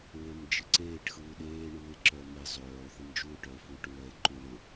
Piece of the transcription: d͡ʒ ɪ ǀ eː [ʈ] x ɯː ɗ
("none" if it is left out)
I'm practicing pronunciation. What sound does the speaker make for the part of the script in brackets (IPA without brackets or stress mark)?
ʈ